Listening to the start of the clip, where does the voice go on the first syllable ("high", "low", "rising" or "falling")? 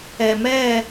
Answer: low